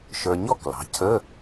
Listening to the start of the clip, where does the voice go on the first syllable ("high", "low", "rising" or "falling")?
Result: low